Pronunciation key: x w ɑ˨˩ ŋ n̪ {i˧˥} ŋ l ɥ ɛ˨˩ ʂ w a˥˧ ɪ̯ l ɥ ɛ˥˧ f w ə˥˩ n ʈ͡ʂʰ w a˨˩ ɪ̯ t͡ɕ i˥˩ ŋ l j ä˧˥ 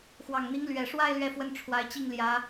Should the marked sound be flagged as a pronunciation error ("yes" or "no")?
no